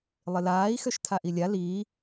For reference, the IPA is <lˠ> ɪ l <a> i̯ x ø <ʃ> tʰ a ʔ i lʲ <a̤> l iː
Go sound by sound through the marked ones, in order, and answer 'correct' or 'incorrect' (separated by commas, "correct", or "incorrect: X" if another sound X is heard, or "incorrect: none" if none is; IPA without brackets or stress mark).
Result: correct, incorrect: aː, correct, incorrect: a